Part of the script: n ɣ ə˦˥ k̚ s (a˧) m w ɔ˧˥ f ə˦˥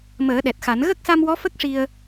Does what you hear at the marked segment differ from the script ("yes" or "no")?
no